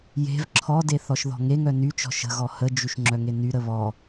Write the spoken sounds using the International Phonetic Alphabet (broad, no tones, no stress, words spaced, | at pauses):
je̤v ǁʰɔde θɔʃðɔ̤ŋeŋœ nyt͡ʃɔ̤ ʃə̤ɣɔ həd͡ʒyʃ ŋ͡ǁœŋenyɾə βɔ